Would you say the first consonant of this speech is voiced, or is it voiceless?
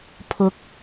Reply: voiceless